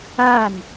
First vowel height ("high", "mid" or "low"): low